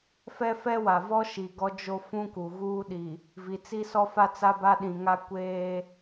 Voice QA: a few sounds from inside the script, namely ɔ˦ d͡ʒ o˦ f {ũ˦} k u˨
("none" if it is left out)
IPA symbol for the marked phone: ũ˦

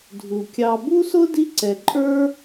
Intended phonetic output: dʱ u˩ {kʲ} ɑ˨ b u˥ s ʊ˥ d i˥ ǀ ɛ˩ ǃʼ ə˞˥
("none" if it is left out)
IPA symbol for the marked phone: kʲ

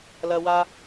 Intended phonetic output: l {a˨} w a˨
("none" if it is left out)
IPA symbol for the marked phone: ɐ˨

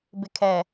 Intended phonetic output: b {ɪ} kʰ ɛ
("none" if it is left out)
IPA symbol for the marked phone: ɪ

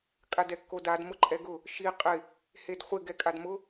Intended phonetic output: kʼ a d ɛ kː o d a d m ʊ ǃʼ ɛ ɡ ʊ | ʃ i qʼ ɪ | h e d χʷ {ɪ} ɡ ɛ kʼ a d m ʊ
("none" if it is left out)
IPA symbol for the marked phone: ɪ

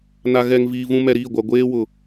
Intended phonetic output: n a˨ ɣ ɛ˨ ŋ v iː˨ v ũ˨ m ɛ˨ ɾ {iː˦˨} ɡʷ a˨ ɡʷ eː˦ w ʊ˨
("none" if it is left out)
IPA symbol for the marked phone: iː˦˨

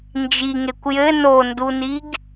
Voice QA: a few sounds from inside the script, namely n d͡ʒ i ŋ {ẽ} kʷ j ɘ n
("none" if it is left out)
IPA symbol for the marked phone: e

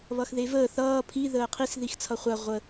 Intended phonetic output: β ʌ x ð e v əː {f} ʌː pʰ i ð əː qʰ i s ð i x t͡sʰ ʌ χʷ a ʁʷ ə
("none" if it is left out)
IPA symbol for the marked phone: θ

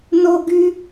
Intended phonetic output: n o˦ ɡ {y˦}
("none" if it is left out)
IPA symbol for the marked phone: y˦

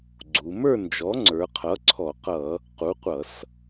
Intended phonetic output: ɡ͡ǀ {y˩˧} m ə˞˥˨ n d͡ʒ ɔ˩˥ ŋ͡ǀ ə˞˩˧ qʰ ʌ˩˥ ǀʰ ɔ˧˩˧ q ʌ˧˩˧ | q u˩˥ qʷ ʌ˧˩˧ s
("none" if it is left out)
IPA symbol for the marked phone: u˩˧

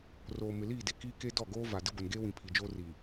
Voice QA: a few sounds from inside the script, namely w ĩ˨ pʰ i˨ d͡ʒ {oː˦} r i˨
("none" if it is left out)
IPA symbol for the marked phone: oː˦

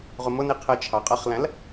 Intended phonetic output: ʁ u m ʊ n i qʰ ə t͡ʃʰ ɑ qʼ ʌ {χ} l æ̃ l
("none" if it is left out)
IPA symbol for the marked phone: χ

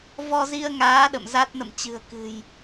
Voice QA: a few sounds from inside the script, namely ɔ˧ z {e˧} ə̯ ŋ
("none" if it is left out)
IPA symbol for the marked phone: i˧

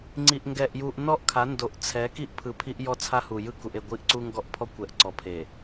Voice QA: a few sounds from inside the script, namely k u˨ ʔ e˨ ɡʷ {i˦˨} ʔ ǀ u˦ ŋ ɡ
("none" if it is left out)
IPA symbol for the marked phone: i˦˨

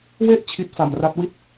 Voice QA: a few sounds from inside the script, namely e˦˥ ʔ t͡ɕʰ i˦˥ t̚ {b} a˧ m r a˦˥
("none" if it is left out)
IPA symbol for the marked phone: f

